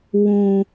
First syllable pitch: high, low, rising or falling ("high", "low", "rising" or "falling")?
low